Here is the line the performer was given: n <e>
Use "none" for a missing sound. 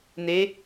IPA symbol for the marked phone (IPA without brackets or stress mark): e